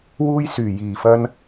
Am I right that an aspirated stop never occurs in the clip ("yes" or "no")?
yes